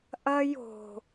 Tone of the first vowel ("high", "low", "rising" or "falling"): high